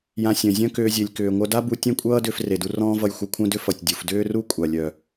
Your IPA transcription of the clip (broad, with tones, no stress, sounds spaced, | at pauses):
j ã˧ sʲ œ̃˩ zʲ œ̃˥ k ʏː˧ zʲ e˩ lʲ k ʏː˩ ŋʷ œ˧ d a˥ b u˧ tʲ ẽ˥ kʷʼ ʌː˥ d ʏː˧ f r e˩ d u˧ r ɔ̃ː˥ v ʌ˧ j xʷ ʌ˧ kʷʰ œ̃˥ d ʏ˥ f ʌ˩ tʲ dʲ u˩ f d ʏː˥ r u˥ kʷʼ a˩ lʲ œ˩